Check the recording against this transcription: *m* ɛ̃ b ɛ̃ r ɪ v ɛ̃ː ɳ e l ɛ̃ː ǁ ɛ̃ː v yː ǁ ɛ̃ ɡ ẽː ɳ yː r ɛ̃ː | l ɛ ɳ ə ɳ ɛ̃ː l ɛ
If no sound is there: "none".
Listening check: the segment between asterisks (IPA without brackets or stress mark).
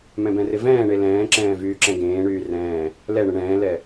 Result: m